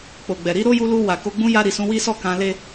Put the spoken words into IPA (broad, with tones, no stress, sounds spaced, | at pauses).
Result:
k͡p o˨ ɡ͡b ɛ˨ ɾ i˨˦ ɾ o˦ j u˧ l u˧ w a˨ k o˧ ɡ͡b ũ˧ j a˧ ɾ i˨ s ũ˧ w i˦ s ɔ˦˨ k ã˧ l e˦